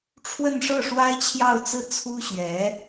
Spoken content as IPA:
ʈ͡ʂʰ w ə˥˧ n ʂ ɤ˥˩ ʂ w a˥ ɪ̯ t͡ɕʰ j ɑ˥˧ ʊ̯ t͡s ɹ̩˥˩ t͡sʰ u˥ ɕ ɥ ɛ˧˥

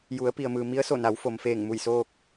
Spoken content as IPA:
j u˩˧ ə̯ p i˩ ə̯ m ɯː˩ m i˧˥ ə̯ s o˧˩ n a˩˧ w f o˩ m f eː˧˩ ŋ m u˧˩ j s oː˧ k̚

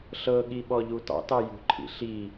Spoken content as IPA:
ɬ ɤ ɠ i ɓ ɔ ʎ u t ɑ̰ t ɑ j ṳ ǃʰ ḭ ɬ i

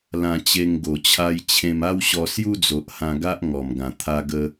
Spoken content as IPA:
l ã˧ t͡ɕ e˧ ŋ ɡ o˨˩ t͡ɕʰ a˧ j t͡ɕʰ ẽ˧ m a˦ w ɕ ɔ˧ s j u˦ d͡z o˨ ʔ h ã˧ ɡ a˦ ʔ ŋ ɔ˨˩ m ɡ ã˨˩ t̪ʰ a˧ ɡ ə˧

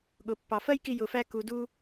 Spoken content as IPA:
ɠ ʊ˩ pː ɑ˩ f ɜ˥ j k i˧ j ʊ˩ f æ˧ k u˩ d u˧

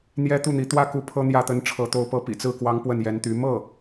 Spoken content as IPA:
n̪ j ɛ˥ t̪ u˥˩ n̪ i˧˥ t̪ w ä˥ k u˧˥ pʰ ɤ˥ n̪ j ä˥˩ t̪ ə˥ n ʈ͡ʂʰ ɤ˧˥ t̪ o˧˥ ʊ̯ p ɤ˧˥ p ḭ˨˩ t͡s ɹ̩˥˩ k w ɑ˥ ŋ p w ə˥˩ n j ɛ˧˥ n t̪ y˧˥ m ɤ˥˩

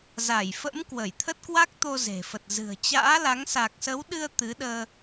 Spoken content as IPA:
z a˧˩ j f ə̰˧˥ m k w ə˧˩ j t̪ʰ ə˦˥ t̚ k w a˦˥ k̚ t̪ o˧ z e̤˨˩ f ə˨˩ t̚ z ɨ̤˨˩ ə̯ t͡ɕ a̰ː˧˥ l a˨˦ ŋ s a˨˩ k̚ s ə˨˦ w ɗ ɨ˧ ə̯ t̪ ɨ˨˦ ɗ əː˧

